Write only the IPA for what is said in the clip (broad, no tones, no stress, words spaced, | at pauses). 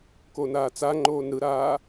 konaːt͡saŋ͡ǃoːn ɾɯɾaː